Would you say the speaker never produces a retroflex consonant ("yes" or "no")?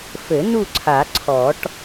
no